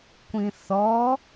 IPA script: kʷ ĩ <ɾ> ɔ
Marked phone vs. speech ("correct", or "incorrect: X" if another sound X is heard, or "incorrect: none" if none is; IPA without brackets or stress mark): incorrect: θ